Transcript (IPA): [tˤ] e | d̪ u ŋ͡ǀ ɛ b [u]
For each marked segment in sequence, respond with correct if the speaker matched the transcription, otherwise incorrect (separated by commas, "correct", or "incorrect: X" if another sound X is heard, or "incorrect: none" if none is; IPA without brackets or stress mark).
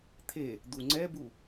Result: incorrect: t̪ʰ, correct